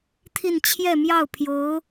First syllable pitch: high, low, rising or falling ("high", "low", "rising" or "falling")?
falling